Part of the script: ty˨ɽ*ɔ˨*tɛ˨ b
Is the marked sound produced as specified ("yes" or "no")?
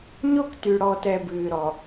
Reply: yes